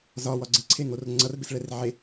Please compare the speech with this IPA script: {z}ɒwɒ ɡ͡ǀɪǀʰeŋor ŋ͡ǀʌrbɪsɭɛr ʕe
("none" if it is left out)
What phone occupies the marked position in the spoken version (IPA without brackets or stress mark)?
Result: z